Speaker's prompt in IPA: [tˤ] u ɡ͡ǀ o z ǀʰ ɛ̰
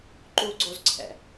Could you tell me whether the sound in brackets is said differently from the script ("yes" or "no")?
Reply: yes